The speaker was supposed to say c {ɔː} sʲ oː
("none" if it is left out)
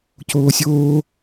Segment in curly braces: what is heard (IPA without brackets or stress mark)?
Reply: oː